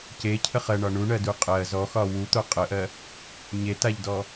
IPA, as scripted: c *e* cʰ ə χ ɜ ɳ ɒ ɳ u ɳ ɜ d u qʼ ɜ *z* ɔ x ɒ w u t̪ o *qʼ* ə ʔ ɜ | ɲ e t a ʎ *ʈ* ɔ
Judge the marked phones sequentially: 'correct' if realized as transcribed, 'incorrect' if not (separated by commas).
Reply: correct, correct, correct, incorrect